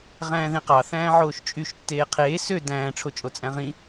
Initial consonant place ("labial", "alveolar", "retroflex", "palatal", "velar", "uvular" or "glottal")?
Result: uvular